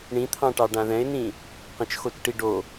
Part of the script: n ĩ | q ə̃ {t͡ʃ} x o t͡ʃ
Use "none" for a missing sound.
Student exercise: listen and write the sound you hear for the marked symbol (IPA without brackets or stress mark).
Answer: t͡ʃ